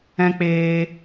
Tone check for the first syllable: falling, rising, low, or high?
high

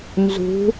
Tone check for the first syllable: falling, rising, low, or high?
rising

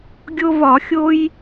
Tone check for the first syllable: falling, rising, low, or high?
high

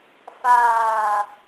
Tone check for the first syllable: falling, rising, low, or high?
low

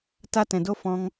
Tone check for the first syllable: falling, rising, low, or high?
high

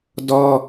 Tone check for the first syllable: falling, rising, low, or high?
high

